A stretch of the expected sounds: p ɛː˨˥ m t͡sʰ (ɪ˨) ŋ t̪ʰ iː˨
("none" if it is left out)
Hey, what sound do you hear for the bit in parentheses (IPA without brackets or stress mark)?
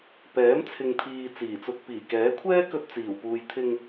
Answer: ɪ˨